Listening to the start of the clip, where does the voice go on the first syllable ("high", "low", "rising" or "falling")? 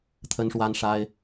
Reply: high